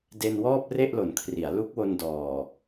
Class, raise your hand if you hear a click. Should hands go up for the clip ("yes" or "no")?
no